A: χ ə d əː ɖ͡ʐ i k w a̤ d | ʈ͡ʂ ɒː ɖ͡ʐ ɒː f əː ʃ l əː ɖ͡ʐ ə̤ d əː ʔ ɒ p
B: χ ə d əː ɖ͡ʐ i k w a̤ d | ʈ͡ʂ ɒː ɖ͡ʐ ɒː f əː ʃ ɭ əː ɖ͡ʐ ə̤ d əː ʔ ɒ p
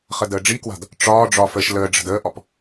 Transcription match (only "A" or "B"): A